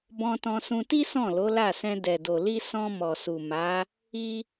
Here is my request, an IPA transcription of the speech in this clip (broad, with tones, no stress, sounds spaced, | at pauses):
b ɔ̃˧ t ɔ̃˧ s ũ˧ t i˦ s ɔ̃˦˨ l o˨˦ l a˦˨ s ɛ̃˧ d ɛ˨ d o˨ l i˧ s ɔ̃˧ m ɔ˨ s u˨ m a˨˦ | i˦